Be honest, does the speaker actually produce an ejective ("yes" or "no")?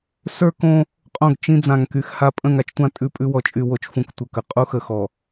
yes